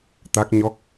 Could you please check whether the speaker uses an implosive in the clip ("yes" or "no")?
no